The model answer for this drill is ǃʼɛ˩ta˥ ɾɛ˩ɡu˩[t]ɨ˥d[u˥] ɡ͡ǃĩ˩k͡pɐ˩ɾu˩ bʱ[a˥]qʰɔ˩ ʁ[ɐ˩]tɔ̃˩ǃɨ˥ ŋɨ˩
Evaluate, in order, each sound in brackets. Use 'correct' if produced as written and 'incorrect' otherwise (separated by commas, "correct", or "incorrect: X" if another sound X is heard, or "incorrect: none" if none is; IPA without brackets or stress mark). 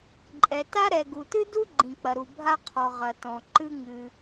correct, correct, correct, correct